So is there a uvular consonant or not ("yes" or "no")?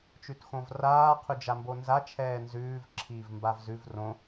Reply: yes